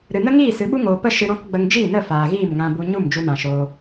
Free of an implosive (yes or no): no